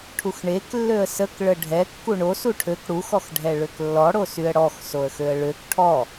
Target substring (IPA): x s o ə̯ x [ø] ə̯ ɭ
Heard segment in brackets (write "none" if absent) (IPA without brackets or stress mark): ø